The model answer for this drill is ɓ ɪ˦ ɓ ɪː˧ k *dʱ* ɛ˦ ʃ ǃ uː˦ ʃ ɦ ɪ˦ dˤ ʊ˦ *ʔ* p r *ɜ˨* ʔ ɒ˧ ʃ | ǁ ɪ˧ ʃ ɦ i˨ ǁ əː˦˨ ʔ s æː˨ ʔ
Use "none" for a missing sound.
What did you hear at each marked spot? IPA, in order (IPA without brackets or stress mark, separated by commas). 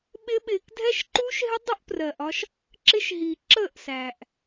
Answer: dʱ, ʔ, ɜ˨